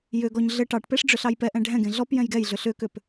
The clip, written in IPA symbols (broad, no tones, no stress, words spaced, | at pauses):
jʏɡɔɲ ɮɘ ʈɑʈpeʂ ɖ͡ʐʏɬɑjpɛʔɛ̃ ɖʱɛ̃ɡẽ ɮɔp jɛ̃jɡɛjɮʏ ɬʏkʏp